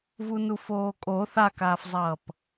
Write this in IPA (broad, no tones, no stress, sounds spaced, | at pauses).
v u n u f oː kʼ o θ a k aː f zˤ ʌː p